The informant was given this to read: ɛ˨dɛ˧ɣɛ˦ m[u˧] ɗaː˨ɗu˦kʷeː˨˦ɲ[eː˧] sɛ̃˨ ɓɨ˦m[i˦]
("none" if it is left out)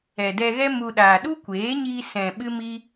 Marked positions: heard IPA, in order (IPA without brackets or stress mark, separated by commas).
u˧, iː˧, i˦